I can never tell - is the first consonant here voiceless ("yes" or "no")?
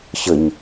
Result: yes